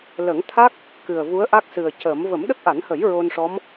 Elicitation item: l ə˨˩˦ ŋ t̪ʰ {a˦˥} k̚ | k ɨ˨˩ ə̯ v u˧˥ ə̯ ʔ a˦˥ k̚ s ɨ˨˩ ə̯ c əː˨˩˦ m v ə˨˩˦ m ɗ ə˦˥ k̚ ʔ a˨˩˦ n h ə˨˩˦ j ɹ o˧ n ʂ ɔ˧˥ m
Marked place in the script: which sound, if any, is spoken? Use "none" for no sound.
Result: a˦˥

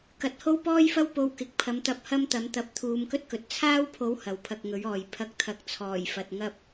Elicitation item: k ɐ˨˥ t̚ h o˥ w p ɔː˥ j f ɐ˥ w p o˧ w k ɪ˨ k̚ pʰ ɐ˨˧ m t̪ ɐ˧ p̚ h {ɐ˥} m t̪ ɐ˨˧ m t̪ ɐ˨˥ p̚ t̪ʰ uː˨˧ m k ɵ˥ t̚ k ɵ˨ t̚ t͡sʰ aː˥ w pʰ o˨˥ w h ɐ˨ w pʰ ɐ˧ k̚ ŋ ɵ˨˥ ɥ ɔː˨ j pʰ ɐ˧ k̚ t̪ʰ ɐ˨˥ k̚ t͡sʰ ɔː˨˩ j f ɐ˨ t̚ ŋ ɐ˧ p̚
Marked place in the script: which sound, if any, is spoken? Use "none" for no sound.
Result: ɐ˥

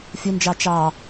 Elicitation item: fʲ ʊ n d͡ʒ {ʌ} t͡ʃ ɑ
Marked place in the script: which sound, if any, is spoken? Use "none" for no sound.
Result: ɑ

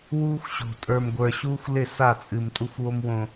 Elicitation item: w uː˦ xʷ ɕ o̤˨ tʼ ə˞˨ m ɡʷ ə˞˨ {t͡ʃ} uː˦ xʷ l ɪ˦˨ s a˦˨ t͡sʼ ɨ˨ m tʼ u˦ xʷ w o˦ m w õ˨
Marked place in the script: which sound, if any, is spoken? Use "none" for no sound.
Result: ɕ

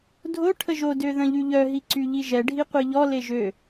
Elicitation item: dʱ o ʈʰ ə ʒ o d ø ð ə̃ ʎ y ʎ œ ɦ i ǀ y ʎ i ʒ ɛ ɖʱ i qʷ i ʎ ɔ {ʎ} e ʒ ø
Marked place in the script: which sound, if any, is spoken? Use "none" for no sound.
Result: l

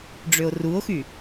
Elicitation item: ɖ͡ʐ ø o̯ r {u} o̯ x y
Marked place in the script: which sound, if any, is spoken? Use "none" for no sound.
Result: u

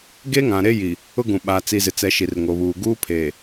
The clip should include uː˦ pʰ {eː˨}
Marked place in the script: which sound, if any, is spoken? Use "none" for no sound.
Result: eː˨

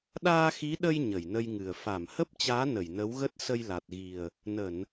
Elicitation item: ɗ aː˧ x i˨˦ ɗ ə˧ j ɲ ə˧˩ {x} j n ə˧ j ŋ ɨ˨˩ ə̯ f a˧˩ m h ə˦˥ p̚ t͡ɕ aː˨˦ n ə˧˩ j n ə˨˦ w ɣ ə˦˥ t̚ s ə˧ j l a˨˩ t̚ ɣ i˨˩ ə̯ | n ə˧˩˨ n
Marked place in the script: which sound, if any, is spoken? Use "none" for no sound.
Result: none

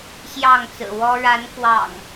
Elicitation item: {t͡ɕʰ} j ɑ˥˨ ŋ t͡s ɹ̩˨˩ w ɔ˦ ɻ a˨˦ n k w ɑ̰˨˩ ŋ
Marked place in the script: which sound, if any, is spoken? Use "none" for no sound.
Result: ɕ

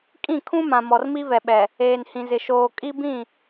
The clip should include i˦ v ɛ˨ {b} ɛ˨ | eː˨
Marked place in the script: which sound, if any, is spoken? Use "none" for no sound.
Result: ɓ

